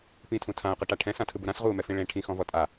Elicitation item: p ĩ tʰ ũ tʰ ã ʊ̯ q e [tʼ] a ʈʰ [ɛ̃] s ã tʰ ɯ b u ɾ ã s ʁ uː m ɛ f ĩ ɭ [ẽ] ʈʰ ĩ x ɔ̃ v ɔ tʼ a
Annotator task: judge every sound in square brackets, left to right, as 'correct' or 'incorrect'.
incorrect, correct, correct

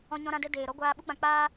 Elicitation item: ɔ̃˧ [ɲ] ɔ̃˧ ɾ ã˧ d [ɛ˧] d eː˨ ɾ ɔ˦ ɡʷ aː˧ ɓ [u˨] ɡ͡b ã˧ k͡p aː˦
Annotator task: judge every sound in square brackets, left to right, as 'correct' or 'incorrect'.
correct, correct, incorrect

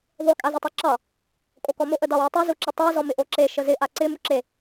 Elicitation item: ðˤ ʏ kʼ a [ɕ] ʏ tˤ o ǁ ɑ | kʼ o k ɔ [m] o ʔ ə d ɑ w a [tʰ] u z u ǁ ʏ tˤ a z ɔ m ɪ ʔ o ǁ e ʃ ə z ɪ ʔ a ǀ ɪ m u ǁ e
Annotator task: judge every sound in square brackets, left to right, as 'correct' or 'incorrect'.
incorrect, correct, incorrect

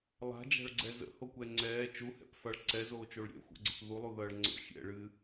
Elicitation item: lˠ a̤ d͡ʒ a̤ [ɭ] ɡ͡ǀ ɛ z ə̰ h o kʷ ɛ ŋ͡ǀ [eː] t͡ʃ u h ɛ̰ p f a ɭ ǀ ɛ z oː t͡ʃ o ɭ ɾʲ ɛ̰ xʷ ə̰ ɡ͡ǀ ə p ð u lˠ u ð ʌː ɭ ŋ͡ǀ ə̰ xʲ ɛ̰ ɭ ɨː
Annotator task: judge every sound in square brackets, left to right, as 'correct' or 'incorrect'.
correct, incorrect

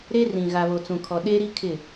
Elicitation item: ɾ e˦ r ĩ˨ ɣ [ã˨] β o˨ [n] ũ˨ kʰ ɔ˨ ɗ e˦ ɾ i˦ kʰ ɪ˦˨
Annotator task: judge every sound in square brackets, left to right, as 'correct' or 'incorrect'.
incorrect, incorrect

